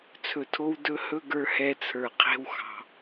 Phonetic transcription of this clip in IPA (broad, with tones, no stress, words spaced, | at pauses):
t͡sʰɵ˨tʰo˧w dɵ˧ hɵ˦ɡə˞˧hɛ˧t͡sʰə˞˨ qʰe̤˧wxɑ̤˨